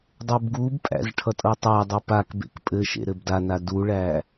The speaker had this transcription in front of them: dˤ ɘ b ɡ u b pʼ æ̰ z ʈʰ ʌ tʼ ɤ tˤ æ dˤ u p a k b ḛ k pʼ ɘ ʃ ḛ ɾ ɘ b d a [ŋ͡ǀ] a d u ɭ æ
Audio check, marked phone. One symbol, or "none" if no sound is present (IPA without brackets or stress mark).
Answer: n